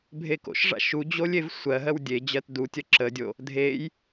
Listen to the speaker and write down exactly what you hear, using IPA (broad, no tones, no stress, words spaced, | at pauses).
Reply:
bʱeko̰ʃʐa̰ ʃud͡ʑolʲ evsʷɜɦɜw dʲed͡ʑɜt dutʲɜ ǁədʲo | dʱej